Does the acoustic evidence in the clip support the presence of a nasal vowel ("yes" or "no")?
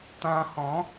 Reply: yes